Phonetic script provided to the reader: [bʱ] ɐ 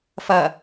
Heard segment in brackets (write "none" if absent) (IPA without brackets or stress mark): f